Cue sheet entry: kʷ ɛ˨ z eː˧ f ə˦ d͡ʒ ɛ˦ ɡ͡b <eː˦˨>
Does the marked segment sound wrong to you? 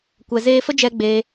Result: yes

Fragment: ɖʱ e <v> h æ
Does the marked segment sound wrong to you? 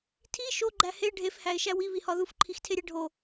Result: yes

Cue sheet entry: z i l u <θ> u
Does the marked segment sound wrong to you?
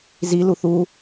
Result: no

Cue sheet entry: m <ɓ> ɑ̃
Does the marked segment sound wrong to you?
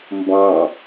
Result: yes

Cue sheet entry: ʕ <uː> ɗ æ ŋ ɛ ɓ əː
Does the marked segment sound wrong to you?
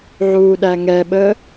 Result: no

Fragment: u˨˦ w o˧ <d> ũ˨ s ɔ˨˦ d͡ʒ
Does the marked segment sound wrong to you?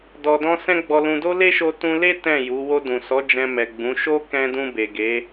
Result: no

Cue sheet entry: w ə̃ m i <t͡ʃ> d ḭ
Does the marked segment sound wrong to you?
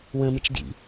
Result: no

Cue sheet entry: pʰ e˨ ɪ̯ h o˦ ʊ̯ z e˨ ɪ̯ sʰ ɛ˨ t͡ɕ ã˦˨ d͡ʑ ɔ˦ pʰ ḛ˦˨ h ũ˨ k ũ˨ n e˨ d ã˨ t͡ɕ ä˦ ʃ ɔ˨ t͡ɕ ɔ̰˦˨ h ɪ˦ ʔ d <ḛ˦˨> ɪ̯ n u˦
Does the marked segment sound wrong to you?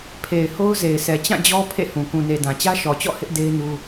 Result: yes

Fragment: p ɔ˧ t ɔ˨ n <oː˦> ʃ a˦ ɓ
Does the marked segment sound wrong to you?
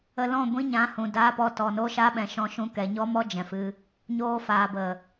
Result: no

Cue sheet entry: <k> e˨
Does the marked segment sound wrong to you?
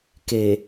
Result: no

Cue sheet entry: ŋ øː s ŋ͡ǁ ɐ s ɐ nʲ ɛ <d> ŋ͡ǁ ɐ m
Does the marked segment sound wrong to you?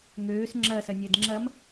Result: no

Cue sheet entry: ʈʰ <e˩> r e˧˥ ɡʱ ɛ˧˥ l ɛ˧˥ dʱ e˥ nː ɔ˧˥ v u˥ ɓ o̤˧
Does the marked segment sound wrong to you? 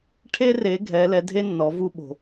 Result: yes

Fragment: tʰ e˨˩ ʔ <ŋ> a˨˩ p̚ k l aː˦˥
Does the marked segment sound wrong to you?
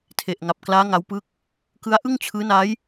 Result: no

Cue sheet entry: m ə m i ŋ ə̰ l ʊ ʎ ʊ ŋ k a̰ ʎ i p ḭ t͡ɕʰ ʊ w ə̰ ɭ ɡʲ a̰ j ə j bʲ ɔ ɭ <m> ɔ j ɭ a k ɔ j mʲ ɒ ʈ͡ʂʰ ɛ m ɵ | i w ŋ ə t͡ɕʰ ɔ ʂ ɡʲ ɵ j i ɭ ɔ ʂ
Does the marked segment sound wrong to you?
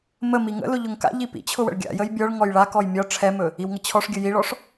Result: yes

